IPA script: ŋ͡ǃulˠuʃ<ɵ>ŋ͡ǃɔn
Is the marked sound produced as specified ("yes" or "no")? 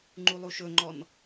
yes